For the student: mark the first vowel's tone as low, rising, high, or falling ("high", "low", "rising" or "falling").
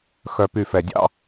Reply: low